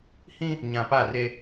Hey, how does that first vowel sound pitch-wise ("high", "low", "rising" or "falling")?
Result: high